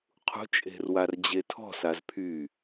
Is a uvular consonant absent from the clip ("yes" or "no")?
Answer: no